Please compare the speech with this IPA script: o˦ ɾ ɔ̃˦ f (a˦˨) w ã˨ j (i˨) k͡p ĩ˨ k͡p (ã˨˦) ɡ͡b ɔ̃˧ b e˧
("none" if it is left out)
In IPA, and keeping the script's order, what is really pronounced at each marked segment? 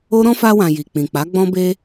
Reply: a˧, i˨, a˨˦

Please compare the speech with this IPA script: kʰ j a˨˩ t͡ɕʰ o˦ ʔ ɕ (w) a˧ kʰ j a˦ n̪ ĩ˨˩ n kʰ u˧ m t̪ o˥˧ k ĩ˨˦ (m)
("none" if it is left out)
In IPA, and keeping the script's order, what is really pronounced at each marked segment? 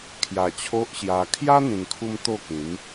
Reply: j, m

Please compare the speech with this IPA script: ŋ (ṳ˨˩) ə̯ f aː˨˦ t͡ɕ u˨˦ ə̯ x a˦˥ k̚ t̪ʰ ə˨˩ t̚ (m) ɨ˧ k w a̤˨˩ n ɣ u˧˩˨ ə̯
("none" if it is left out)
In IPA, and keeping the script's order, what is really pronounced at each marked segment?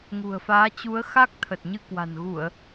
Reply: ṳ˨˩, ɲ

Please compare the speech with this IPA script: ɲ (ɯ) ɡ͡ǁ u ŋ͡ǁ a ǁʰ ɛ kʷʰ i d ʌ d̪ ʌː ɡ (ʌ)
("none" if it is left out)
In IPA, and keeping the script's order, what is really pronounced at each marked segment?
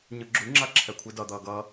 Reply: ɯ, ʌː

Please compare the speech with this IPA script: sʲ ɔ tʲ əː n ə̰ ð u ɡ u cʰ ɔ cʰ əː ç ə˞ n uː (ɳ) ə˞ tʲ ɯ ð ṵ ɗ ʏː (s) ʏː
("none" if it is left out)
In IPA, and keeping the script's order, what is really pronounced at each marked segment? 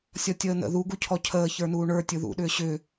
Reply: ɳ, ɕ

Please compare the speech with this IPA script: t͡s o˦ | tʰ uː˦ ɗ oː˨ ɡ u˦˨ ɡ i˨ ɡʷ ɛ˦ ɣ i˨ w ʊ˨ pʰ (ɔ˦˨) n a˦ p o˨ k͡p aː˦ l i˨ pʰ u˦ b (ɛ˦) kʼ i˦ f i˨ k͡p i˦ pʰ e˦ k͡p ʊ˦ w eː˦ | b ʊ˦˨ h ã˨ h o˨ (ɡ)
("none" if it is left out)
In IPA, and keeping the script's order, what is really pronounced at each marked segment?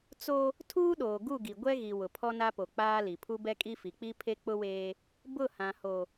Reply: ɔ˦, ɛ˦, none

